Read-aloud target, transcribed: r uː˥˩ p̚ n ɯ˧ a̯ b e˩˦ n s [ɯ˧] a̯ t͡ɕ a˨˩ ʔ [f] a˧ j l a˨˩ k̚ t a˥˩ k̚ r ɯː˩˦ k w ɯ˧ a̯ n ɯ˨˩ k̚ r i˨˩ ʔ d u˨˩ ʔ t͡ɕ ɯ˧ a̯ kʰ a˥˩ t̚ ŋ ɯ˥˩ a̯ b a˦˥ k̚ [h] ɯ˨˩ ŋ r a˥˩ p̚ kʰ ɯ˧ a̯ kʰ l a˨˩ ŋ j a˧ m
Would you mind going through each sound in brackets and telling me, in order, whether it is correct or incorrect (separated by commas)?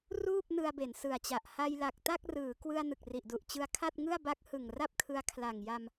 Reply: incorrect, incorrect, correct